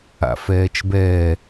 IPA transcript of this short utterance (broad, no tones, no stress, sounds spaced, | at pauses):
a̰ f ɛː t͡ʃ b ɛː